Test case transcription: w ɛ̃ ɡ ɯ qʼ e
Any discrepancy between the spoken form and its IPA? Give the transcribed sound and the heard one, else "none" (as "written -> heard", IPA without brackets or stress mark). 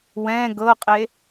ɯ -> ɤ